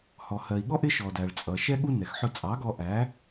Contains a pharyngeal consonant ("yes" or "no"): yes